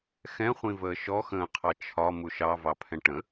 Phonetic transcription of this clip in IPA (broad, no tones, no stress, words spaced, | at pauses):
xɛ̃χʷĩvəː ʃɔxə̃ːqʰɑ t͡ʃʰɒmu ʃɑvɑpʰɛ̃ ʈə̃